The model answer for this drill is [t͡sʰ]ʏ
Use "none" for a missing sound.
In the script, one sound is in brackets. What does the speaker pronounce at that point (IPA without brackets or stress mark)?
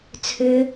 t͡sʰ